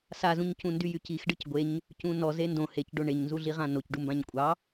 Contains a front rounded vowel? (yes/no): yes